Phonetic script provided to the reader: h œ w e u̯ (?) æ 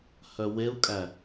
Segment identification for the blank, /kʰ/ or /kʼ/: kʼ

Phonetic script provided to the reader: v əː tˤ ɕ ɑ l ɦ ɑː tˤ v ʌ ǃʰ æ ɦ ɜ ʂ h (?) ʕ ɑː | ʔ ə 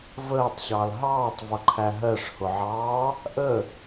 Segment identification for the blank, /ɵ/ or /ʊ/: ʊ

